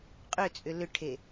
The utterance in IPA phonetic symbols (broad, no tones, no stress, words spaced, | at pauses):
qʼʏt͡sʼʏ lʏʈʰe